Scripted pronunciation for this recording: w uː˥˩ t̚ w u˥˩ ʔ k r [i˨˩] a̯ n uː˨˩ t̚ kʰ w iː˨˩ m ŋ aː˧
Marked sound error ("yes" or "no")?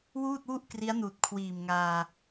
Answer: yes